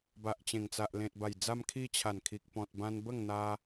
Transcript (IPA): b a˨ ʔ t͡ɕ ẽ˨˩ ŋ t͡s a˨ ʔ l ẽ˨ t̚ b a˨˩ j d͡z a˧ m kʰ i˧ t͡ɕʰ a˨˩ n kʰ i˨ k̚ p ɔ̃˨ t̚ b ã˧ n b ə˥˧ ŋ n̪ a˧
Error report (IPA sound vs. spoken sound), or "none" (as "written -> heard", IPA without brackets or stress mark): none